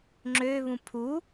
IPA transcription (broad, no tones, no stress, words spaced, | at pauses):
ŋ͡ǁøβũ pʰu